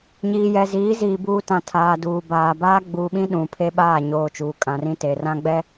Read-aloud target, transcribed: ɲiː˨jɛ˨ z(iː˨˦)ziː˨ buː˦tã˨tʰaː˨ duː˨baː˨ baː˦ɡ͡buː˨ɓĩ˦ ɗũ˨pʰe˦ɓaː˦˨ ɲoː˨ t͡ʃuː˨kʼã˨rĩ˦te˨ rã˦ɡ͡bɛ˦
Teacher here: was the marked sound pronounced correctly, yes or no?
yes